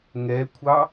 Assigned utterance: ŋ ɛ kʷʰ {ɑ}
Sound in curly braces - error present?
no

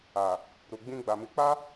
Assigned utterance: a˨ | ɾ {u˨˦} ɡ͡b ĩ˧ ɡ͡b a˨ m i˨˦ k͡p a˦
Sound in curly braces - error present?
yes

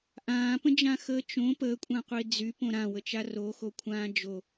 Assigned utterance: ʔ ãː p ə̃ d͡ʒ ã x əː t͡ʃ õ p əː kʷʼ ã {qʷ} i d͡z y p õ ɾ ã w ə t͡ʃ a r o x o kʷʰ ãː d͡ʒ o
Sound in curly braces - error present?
no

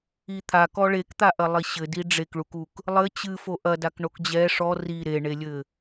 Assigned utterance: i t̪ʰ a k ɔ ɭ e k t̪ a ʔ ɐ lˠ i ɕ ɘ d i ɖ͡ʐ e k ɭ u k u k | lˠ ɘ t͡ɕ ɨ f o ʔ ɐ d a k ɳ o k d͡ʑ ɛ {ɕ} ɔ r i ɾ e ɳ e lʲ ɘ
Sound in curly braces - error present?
yes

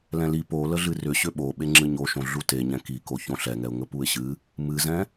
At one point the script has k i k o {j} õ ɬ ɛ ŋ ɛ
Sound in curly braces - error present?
yes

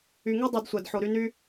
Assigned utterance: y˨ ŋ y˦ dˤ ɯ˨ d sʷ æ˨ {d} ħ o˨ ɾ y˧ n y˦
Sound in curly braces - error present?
no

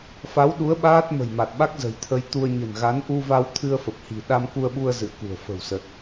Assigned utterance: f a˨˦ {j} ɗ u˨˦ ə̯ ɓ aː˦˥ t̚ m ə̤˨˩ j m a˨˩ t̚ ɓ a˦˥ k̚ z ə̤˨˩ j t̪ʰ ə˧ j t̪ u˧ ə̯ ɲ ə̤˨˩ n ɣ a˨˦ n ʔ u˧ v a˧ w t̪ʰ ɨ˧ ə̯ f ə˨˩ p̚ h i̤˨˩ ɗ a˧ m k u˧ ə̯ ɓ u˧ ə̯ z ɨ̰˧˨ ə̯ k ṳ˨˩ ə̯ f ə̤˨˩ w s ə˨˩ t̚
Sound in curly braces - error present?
yes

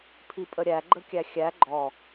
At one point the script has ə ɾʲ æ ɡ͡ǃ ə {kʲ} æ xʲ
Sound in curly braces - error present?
no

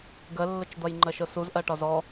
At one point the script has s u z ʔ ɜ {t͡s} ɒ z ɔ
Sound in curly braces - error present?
yes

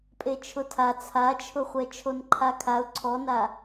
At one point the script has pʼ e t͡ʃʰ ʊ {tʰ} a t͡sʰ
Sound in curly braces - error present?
no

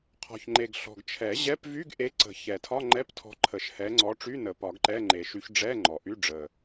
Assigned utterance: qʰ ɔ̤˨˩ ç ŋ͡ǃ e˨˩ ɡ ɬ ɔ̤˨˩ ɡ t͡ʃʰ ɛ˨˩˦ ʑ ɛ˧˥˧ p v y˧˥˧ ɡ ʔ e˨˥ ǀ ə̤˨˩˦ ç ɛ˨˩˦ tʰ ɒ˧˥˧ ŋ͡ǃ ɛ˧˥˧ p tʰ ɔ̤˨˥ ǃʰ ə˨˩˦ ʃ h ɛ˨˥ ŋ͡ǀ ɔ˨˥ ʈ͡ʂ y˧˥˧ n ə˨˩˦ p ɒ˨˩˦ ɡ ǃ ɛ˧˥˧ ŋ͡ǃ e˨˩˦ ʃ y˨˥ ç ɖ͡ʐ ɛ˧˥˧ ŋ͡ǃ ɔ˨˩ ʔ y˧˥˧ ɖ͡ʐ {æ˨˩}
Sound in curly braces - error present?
yes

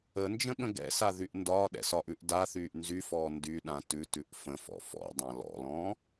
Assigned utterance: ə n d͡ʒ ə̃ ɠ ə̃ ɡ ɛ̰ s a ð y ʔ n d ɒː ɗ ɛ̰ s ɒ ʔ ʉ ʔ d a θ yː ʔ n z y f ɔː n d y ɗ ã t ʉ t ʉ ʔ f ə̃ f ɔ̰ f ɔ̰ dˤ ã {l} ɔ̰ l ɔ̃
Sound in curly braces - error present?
no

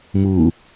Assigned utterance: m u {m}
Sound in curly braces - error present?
yes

